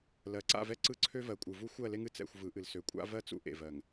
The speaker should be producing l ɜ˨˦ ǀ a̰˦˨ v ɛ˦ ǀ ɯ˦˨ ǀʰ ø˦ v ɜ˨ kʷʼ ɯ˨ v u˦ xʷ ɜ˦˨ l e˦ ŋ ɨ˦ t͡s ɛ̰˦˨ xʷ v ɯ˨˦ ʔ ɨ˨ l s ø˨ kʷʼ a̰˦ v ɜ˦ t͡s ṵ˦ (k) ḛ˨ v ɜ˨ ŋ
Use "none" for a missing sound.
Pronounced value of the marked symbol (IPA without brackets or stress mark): ʔ